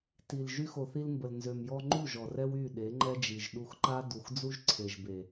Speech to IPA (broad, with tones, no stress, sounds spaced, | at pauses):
t i˨ l ʒ y˧ x o˨ θ i˧ l m b ə˨ l n z ø˨ m j ɔ˧ ŋ͡ǃ u˦˨ ʒ ɔ˨ r ɛ˦ w y˦˨ ɗ e˨˦ ŋ͡ǃ ɛ˦ d͡ʒ i˨ ʒ ɗ u˧ x ǃ a˦ d u˨ x d͡z u˦ ʒ ǀʰ e˨ ʒ b e˨